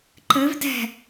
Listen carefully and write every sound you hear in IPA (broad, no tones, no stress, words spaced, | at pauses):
ǃɘv dɛ̤